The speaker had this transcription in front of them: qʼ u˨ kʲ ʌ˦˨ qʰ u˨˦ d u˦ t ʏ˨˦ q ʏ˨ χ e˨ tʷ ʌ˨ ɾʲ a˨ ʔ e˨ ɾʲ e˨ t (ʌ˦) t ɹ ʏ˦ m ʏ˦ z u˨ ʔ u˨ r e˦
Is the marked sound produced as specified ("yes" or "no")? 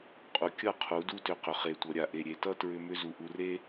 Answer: yes